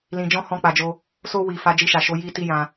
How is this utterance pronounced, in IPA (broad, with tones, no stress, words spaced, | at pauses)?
lĩ˧d͡ʒɔ̃˦ hɔ̃˦˨k͡pa˧d͡ʒo˦ | so˧wi˨ fa˧d͡ʒi˧ʃa˨ʃo˨˦ ji˦ ti˦˨jã˧